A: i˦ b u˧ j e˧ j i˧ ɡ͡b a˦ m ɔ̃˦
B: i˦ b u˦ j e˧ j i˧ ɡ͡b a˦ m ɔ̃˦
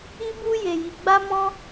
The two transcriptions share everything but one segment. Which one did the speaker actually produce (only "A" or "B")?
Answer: B